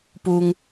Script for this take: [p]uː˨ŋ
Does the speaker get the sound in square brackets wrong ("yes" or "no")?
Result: no